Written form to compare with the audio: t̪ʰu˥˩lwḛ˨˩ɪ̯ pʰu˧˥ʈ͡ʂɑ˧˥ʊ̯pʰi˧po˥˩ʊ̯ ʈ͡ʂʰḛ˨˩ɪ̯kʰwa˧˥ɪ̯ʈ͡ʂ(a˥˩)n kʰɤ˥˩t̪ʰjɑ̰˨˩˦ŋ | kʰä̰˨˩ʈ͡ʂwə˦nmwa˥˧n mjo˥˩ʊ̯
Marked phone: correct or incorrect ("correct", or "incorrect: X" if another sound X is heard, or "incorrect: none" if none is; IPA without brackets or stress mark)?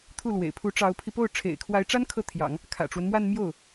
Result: incorrect: a˥